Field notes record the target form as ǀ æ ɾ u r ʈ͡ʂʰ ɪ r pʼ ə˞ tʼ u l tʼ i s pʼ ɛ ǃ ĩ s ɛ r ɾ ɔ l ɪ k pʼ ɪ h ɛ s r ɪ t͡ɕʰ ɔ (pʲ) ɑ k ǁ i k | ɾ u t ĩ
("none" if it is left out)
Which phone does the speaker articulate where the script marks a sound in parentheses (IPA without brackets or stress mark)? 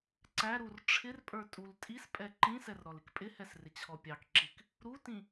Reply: pʲ